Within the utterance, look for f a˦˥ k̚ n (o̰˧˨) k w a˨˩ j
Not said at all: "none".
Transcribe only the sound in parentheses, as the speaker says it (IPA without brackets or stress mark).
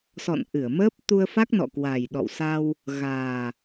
ɔ̰˧˨